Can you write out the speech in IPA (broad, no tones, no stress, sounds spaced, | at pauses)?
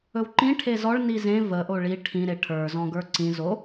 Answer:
ɵ w ǃ ĩ ʈʰ e z ɔ ɭ n i z ẽ v ə ʔ o ɭ i ʈʰ ĩ ɾ e ʈʰ ə˞ z ɔ̃ ɡ ə˞ ǀ ĩ z o